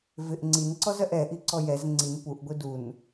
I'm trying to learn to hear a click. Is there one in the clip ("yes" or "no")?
yes